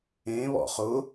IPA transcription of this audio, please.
ẽ βɔ̰χʊ

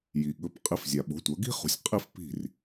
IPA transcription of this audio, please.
ji˩ɠɵ˩˥p qʼi˩˥fzʲa˩ɓo̤˩˥ tʷɐ˩˥ ɡi̤˥χṳ˩˥sʲ qʼi˥fpi̤˥˩r

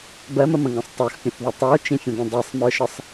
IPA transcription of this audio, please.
bɜməmə̃ŋɐ̃sˤ tˤə˞xpʲə̃θðɐ tˤə˞t͡ʃĩfʲə̃dɐ̃ dˤisˤmə˞ʃəsˤ

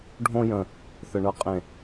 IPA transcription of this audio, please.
ɖʱõ˥jə̃˧˩ | θə˧˩ɳɤ˥˩ qʼẽ˧˩

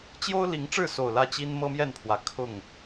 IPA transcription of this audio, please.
t͡ɕjo˦ʊ̯ li˨˦ŋʈ͡ʂɻ̩˥˨so˨˩ʊ̯ lä˥˨t͡ɕi˦n mɤ˦mjɛ˥˨npʰwä˨˩ kʰʊ˥˨ŋ

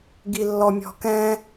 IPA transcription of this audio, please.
ɡilːɔmʲɔ̤kɛ̃

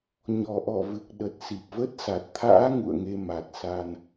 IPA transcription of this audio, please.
ɲɔ˨˩ʔɔ˧˩vɨ˨˩k̚ɗə˨˩t̚ si˨˩p̚və˦˥t̚sa˨˩t̚ t̪ʰa̰ː˧˥ ŋṵ˧˨ə̯ŋe˧ ma˨˩t̚sa˧n

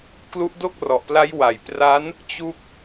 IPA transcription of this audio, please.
klu˦˥ʔdo˥˩k̚rɔ˨˩ʔpla˦˥j wa˩˦jpra˦˥n | t͡ɕu˦˥k̚

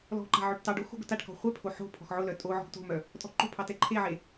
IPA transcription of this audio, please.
lɔ̤ ǃa̤ʕøʈtɑɖo xo̤ɡʊtaʈkɔ̤ χʷɛpʰo ħo̤ pʰɔ̤xʕʊlœ tʼoʕɔ̤ɡ to̤mœ | tʼɔ̤ǃo̤pʰɑ tɛǃʰeʕe

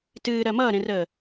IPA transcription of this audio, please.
tɨː ɾɜmʌːɾẽrəː

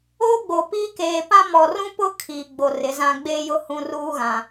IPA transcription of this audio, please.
oː˦ɡ͡bo˨piː˦ keː˨pã˦ mɔ˨rũ˦pʊ˦ kʰiː˨ɡ͡bo˨ rɪ˨˦zã˦ ɡ͡beː˦jʊ˦ hũ˨ ruː˦ɣã˨

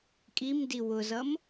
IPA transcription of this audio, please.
kʼimdi wʊzʌm

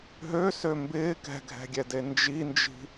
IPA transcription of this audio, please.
ɦøsø mbɪː kɛ̤ɡʱɛ̤ɡʲɛde nd͡ʒind͡ʒi̤

